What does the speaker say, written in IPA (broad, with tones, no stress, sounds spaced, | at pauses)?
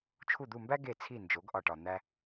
t͡ʃʰ u˥˩ d̪ u˥˩ m b æ˥ ɡ e˥˩ t͡sʰ i˥˩ n d͡ʒ o˩˥ ɡ ʔ ɒ˥˩ ʈ ɒ˧ n̪ æ˥